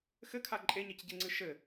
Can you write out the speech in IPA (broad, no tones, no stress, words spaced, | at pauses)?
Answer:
xɘkʰa ǃʼeɲecɟeŋ͡ǀɨ ʃɘ